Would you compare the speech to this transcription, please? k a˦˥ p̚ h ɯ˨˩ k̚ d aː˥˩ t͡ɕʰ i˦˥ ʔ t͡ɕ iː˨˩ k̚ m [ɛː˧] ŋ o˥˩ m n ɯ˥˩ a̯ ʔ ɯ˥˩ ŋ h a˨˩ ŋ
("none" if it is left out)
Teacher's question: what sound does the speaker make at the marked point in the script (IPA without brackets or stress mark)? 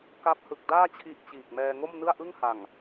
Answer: ɛː˧